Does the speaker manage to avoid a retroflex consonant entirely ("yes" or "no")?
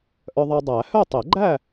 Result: yes